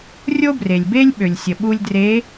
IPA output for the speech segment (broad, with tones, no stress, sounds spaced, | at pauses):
rʲ o˥ b r e˩ lʲ b e˥ lʲ ɓ ø˩ lʲ sʲ ə˩ ɓ u˧ lʲ d r e˧˥